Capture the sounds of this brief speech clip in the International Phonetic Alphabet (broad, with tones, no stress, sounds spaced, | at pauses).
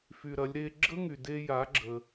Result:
f y˩ ɾ ɐ˩˧ lʲ ɾ e˧ ɡ͡ǁ ə˥ ŋ y˩ d e˧ j a˩˧ ɡ͡ǁ ə˩